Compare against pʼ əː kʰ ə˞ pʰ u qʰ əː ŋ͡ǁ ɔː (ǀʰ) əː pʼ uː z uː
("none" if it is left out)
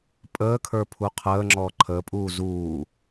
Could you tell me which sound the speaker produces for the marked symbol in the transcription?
ǃʰ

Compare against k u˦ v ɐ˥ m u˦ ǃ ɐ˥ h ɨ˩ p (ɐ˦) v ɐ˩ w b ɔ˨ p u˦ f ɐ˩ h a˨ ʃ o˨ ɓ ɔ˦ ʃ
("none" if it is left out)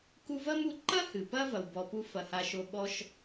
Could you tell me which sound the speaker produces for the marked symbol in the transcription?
ɐ˦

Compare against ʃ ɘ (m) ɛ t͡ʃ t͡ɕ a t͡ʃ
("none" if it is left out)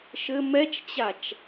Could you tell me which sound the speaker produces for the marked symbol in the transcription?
m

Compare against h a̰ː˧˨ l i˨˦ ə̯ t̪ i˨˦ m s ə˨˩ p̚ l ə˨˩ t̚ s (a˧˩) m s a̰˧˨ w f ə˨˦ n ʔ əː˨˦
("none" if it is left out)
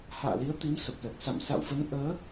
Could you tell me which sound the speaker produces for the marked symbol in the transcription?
a̰˧˨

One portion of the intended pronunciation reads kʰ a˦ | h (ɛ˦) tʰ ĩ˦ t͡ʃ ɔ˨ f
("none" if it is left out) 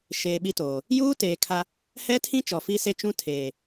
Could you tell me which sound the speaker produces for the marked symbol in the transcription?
ɛ˦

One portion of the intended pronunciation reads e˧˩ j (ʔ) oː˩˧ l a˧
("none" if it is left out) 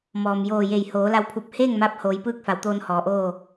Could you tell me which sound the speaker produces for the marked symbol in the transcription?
h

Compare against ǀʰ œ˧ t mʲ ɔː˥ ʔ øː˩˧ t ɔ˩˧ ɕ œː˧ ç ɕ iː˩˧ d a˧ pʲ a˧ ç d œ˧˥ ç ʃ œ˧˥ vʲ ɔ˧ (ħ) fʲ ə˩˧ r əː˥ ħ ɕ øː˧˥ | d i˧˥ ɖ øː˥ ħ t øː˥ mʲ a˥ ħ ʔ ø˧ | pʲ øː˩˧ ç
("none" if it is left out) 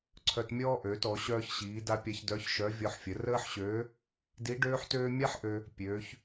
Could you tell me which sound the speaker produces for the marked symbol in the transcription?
ħ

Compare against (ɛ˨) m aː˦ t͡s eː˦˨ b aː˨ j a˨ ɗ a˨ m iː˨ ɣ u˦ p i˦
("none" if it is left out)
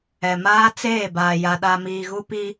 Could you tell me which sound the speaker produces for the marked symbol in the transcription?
ɛ˨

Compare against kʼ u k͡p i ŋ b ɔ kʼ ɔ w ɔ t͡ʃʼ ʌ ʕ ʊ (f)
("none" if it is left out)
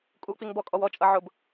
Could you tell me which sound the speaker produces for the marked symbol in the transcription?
b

